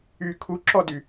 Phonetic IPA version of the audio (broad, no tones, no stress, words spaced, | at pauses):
y kʰuǁɔdy